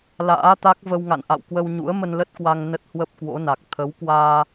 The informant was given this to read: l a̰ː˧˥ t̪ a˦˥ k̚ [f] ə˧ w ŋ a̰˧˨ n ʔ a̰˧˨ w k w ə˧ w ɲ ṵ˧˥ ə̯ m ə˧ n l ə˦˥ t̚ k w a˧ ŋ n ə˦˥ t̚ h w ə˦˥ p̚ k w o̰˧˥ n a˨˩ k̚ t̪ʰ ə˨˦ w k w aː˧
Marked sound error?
yes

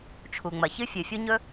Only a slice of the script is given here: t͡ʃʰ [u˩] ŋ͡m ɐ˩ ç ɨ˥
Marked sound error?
no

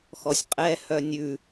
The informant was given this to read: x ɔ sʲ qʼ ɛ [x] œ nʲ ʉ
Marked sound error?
yes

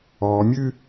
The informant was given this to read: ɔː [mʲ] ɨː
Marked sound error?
no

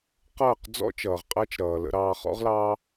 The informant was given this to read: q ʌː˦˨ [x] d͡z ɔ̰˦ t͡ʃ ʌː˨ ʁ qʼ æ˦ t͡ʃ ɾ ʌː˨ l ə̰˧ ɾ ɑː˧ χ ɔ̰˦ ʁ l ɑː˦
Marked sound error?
yes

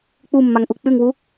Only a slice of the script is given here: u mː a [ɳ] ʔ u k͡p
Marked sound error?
yes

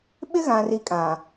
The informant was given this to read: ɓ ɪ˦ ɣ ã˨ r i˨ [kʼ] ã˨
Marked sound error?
no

